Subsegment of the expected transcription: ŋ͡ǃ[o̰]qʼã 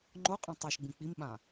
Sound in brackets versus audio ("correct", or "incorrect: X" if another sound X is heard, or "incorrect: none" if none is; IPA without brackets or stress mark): incorrect: o